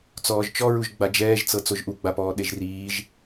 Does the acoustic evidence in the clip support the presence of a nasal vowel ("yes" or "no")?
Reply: no